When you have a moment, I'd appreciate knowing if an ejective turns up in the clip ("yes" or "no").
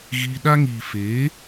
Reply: no